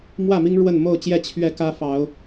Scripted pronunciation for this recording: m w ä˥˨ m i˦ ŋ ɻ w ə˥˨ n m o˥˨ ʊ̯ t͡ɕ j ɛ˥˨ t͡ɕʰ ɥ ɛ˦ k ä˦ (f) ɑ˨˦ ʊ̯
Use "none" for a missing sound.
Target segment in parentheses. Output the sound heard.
f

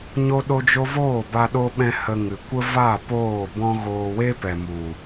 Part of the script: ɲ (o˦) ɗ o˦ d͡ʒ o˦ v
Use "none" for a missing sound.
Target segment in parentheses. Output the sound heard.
o˦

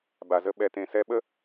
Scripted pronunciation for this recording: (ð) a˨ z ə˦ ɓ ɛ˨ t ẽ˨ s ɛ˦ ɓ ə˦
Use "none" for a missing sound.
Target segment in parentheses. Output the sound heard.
b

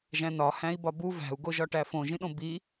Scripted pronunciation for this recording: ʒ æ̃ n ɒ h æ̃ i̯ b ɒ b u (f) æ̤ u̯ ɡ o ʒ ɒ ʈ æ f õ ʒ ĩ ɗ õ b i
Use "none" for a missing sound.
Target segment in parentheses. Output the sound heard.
v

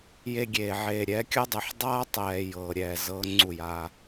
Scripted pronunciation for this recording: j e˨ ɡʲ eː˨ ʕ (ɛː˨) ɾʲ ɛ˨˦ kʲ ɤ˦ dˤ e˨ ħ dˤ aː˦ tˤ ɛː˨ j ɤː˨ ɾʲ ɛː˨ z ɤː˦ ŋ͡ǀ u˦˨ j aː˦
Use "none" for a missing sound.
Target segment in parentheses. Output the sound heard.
eː˨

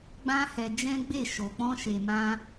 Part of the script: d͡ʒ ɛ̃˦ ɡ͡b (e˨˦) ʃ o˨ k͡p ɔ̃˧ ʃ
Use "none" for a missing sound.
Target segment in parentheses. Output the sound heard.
e˦˨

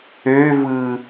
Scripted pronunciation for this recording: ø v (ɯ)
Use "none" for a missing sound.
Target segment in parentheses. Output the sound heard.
ɯ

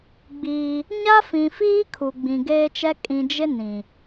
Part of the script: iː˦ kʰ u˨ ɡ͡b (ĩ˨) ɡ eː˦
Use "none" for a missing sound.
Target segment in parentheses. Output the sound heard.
ĩ˨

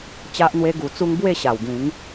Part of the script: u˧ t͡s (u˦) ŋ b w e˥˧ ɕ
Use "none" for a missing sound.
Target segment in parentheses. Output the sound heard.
u˦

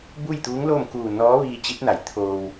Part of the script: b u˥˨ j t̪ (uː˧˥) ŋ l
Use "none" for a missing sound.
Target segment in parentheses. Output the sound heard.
uː˧˥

